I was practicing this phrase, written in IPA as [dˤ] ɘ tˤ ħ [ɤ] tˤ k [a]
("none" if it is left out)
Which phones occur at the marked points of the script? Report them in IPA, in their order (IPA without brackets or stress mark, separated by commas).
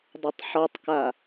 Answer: dˤ, ɔ, a